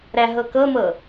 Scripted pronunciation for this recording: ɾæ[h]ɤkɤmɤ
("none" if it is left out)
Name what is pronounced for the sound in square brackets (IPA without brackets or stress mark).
ɦ